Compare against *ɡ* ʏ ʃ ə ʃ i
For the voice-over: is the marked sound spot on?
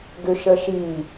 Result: yes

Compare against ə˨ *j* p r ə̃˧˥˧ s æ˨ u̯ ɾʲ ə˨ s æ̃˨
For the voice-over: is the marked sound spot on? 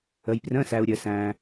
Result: yes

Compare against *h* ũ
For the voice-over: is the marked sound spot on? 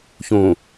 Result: no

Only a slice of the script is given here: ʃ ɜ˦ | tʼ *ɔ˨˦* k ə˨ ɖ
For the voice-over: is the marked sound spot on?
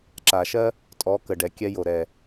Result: yes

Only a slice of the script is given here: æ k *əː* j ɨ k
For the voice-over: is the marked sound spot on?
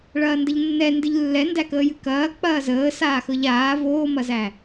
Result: yes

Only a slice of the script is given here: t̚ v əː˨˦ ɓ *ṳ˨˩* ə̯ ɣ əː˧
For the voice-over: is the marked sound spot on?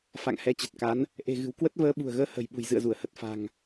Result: yes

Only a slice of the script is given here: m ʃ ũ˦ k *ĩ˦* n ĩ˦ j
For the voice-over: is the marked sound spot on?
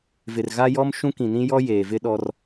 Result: no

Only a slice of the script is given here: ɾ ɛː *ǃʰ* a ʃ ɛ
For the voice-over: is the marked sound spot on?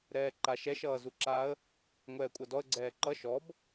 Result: no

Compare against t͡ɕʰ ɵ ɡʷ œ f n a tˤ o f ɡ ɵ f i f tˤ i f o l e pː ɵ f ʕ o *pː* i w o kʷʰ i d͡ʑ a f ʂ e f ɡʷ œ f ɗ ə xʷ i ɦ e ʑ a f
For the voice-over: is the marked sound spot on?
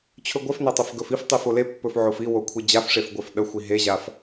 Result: no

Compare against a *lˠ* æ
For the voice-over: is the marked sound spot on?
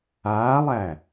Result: yes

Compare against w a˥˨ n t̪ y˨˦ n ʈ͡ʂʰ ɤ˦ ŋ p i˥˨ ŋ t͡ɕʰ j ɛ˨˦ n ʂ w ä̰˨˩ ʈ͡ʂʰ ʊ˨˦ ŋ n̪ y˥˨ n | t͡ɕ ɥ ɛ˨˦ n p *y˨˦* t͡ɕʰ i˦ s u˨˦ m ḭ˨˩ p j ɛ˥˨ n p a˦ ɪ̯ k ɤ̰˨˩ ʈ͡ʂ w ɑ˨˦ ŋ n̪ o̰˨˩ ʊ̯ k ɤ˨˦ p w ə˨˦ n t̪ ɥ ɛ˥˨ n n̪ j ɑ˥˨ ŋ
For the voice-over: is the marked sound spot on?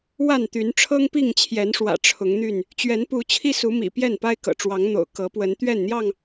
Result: no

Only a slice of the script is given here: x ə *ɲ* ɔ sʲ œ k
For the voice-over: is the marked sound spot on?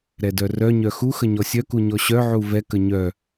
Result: yes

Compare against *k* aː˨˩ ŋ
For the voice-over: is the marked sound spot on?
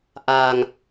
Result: no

